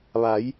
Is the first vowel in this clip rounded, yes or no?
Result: no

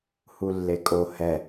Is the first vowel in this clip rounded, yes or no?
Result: yes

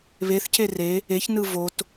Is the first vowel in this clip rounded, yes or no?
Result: no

